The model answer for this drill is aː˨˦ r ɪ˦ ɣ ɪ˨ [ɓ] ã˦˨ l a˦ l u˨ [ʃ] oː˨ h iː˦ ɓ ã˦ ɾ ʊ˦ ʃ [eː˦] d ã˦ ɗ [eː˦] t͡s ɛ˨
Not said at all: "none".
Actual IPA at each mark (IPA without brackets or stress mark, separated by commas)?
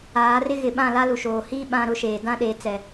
ɓ, ʃ, eː˨, eː˨